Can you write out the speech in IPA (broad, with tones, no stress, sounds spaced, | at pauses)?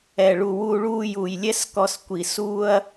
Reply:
ɛ˨ ɭ u˨ w uː˧ ɭ uː˧ j uː˨ j lʲ ɛ˦ s k ɔ˧ s kʷ i˨ s uː˧ ɐ̯